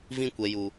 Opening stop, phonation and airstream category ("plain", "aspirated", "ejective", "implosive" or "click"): plain